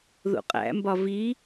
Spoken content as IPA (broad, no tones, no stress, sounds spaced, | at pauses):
ð ṵ qʼ æ̰ m b ɒ v i